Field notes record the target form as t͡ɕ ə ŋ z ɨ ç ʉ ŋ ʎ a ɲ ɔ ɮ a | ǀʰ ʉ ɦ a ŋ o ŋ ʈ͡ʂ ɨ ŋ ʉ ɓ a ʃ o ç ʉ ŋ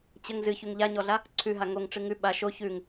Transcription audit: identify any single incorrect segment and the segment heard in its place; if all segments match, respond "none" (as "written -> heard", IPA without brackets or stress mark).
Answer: none